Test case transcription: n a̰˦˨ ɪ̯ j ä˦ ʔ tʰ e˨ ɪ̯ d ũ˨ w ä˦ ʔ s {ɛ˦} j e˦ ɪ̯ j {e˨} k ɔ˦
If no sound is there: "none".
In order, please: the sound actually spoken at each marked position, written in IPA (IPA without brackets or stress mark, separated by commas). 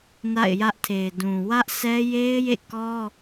ɛ˦, ḛ˦˨